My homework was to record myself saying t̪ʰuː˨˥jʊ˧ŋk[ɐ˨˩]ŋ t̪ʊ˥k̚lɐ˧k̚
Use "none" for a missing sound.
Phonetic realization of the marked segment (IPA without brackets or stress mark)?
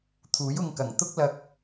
ɐ˨˩